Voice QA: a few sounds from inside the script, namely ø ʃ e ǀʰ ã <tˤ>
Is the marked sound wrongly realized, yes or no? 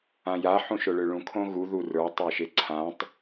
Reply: no